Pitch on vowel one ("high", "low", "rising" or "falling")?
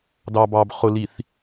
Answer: low